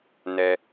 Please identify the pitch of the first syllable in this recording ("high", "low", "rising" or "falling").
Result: low